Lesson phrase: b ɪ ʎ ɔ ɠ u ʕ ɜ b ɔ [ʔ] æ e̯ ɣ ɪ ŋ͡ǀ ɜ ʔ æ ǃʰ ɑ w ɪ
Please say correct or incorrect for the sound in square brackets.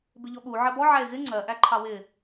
incorrect